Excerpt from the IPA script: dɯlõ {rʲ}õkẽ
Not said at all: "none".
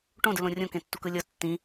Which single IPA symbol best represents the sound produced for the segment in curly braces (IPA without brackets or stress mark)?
rʲ